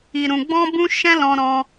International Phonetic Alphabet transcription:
i˨ ɾ ũ˨ ɡ͡b ɔ̃˧ b ũ˧ ʃ ɛ̃˦ l ɔ̃˧ ɾ ɔ̃˧

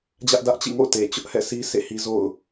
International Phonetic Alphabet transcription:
d͡ʑ ä˦ ʔ d ä˦ ʔ t͡ɕ ḭ˦˨ ŋ o̰˦˨ ʊ̯ t e˨ t͡ɕ ʊ˦ ʔ h ɛ̰˦˨ s i˦ s ḛ˦˨ h i˦ z o̰˦˨ ʊ̯

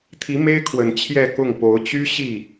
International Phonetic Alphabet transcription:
t̪ʰ i˧˥ m e˥ ɪ̯ kʰ w ə˨˩ n t͡ɕʰ j ɛ˥˧ k ʊ˥˩ ŋ p o˧˥ ʊ̯ t͡ɕ y˥ ɕ i˥˩

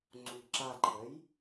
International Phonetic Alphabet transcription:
ŋ͡ǀ u ɡ ǁ a ǃʰ ə j

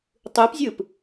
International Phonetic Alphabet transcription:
tˤ ɯ p zʲ ɯ p

